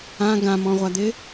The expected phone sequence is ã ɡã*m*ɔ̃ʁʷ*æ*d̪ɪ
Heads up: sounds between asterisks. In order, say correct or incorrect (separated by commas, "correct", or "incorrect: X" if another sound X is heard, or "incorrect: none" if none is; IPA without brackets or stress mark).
correct, incorrect: a